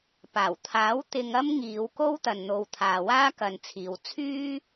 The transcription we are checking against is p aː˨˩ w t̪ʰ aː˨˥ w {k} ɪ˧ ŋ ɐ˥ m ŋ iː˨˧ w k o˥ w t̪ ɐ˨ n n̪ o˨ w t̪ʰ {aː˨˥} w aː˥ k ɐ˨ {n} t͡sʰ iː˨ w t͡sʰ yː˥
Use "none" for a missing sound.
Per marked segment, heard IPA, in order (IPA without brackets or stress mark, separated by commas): t̪, aː˨, n